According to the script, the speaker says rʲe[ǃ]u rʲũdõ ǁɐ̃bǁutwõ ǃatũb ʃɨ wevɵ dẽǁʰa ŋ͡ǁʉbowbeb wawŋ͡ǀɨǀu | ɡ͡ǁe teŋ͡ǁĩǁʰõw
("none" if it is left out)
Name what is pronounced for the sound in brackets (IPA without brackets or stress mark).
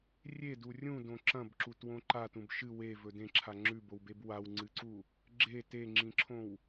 d